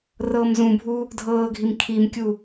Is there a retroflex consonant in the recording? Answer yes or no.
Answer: no